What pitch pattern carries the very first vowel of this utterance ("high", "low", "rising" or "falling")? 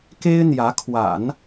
high